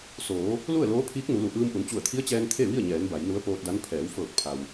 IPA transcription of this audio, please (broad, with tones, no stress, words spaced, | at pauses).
soː˩˧ | lu˥˨ə̯loː˧˥pʰiː˧˥k̚ nu˩˧lu˩ ʔɯː˧mʔu˩˧n t͡ɕu˧˩ə̯t̪ʰi˧˥ə̯t͡ɕɛː˧n t̪ʰe˥˨ʋi˥˨ə̯ɲɛː˩˧n ba˩˧jnu˧˥ə̯poː˧t̚da˧˥n pʰɛː˩˧wfɤː˧˩k̚pʰa˩w